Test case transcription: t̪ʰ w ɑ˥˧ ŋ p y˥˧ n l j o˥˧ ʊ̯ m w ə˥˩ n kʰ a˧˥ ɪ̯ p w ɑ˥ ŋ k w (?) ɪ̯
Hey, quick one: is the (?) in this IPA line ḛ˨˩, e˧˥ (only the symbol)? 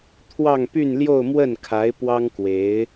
e˧˥